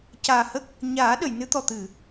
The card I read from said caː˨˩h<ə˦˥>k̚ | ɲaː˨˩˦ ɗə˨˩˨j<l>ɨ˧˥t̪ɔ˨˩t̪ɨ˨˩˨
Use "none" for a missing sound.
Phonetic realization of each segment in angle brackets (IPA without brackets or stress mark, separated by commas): ə˦˥, n